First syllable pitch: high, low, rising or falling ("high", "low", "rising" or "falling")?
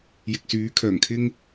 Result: low